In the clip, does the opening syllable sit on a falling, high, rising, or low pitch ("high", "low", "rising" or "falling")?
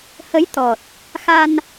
rising